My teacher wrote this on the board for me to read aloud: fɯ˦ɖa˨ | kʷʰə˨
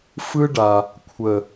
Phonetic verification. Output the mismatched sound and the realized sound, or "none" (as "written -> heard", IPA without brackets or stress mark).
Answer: none